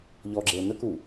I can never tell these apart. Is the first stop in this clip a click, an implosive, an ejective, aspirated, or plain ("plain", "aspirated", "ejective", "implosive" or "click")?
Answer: click